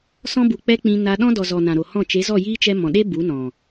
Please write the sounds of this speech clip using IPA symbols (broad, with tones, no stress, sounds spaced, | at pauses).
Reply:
s ɔ̃˧ b u˨ k͡p ɛ˧ k͡p ĩ˧ n a˧ ɗ ɔ̃˦ d ɔ˨ z ɔ˨ n ã˨ ɾ o˨ h ɔ̃˦˨ t͡ʃ e˨˦ z ɔ˦˨ j iː˦ t͡ʃ ɛ˧ m ɔ̃˨ ɗ e˦ b u˨˦ n ɔ̃˨